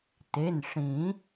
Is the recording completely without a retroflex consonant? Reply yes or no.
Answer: no